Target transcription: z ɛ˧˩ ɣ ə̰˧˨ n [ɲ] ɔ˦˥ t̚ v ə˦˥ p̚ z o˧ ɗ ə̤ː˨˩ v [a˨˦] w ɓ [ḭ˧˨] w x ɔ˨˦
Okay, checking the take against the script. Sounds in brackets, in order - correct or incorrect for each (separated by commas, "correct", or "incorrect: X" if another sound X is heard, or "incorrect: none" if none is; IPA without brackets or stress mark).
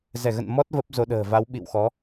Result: incorrect: m, correct, correct